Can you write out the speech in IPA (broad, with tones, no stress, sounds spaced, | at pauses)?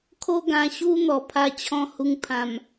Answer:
kʰ o˦ ɡ ã˧ ɕ u˦ n̪ ɔ˧ pʰ a˥˧ t͡ɕʰ ɔ̃˥˧ h u˧ ŋ pʰ ã˨˩ m